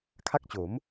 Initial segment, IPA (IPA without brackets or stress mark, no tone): kʰ